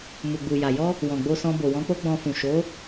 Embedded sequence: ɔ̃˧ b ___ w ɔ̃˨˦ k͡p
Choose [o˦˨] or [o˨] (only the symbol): o˨